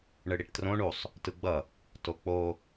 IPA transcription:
ɳ ɯ ɽ i ʈ t r õ ɳ u sˤ | t ɯ ɡ͡b ʌ | t o k͡p o

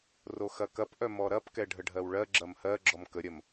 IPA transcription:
r o x ɐ k ɐ p ʔ œ m ɔ ɾ ɐ p k ɛ ɖʱ ə ɖʱ ɜ w ɭ ɜ ɡ͡ǁ ɐ m h ɜ ɡ͡ǁ ɔ m k ə ɾʲ ɐ m

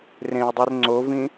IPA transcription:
r ẽ w dˤ i r ŋ͡ǀ o v ĩ

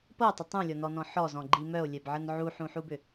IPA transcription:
p ɤ tˤ ə tˤ ũ lʲ ɔ n ɔ n ɔ̃ ħ ɔ z ɔ̃ ɡ͡ǃ i m œ o̯ lʲ ɛ b ʕ ə n ʕ u ħ ũ ħ u b ʏ

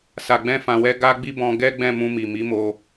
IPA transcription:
s a˨ ɡ͡b ɛ̃˧ f ã˨ w ɛ˧ ɡ a˦ ɡ͡b i˦ b ɔ̃˧ ɡ ɛ˦ ɡ͡b ɛ̃˦˨ m ũ˧ m i˨ m i˨˦ m o˧

